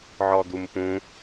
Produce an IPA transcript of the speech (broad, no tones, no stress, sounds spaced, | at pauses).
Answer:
ʕ ɔ d̪ u m p ũ